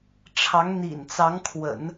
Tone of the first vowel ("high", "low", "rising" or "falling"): rising